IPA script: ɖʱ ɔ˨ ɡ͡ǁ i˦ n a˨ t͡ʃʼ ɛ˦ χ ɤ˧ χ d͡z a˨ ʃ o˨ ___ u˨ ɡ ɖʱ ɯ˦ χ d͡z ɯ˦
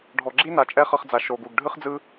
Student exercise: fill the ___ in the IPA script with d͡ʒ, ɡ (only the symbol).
ɡ